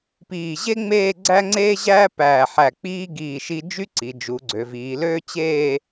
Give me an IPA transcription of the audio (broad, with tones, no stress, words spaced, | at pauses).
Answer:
piː˧˩ ʑe˥ŋ͡meː˥˧ ɡ͡ǀæ˥ŋ͡ǀeː˥ʑæː˥ pæː˧˩ħæ˧˩k͡piː˥ ɡiː˧˩ʃi˧ d͡ʒy˥ǀi˩˧d͡ʒu˩˧ɡ͡ǀø˩˧ viː˩˧løː˥ t͡ɕeː˥˧